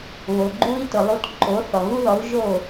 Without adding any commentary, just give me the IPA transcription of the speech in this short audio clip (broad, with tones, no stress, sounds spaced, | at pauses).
β o˩ ɡ͡ǃ u˧ i̯ t ʊ˩ lˠ u˧ t ǃ o˩˥ θ ɔ˩ ɣ u˥ ð ɔ˩˥ u̯ ʒ o˥˩